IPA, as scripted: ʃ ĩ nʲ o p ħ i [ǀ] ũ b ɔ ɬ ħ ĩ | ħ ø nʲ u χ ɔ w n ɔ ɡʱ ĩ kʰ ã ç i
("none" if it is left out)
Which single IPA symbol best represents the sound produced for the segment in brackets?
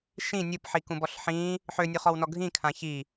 k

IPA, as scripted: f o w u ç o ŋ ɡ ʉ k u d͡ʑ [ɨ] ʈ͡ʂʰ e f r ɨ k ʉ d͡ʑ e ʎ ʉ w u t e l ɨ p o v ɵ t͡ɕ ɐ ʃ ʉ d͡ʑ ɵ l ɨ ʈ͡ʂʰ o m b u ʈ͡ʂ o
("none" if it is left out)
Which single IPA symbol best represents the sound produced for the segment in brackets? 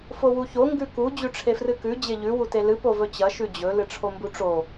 ʉ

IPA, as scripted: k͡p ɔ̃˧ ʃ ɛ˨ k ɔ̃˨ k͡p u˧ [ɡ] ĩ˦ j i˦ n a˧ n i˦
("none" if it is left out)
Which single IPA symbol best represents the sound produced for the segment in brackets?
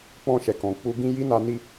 ɡ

